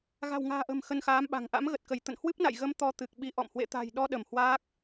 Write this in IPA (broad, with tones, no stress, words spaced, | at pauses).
ɣa̤˨˩wŋa̤ː˨˩ʔə̤˨˩m xə˧nxaː˨˦mɓa̤˨˩ŋ ʔa̰˧˥mɣə˨˩t̚kə˧˩j t̪ə̰˧˨nhwɨ˦˥p̚na̰˧˨j ɣə˧m t̪ɔ˧ t̪ɨ˨˩k̚ɓi˨˦ ʔɔ̰˧˨m hwḛ˧˨t̪a̤˨˩j ɗɔ˧ɗə˧˩m hwaː˦˥k̚